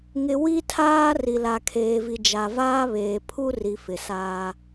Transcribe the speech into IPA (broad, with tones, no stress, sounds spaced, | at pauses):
ŋ ɪ˨ w i˦ tʰ aː˦ r i˨ l a˨ kʰ eː˨ v i˨ d͡ʒ a˨ v aː˦ β eː˨ pʰ u˦ r i˨ f ɪ˨ s aː˦